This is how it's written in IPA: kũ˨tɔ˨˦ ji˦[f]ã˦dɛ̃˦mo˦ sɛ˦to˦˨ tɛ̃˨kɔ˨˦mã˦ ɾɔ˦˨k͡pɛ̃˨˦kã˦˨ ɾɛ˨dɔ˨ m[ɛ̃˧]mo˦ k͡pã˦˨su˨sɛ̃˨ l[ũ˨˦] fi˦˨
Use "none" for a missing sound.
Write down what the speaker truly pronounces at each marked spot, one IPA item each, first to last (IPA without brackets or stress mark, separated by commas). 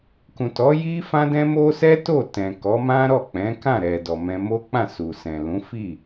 f, ɛ̃˧, ũ˨˦